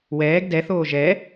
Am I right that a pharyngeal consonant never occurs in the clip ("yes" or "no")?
yes